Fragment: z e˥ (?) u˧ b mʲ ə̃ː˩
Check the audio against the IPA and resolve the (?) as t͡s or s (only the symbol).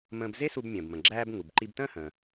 s